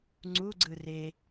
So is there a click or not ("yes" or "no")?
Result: yes